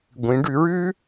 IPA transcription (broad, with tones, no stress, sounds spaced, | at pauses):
ɡʷ ĩ˩˧ ɖ ʉ˩˧ ɹ ʉ˥